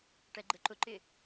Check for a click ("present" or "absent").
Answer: present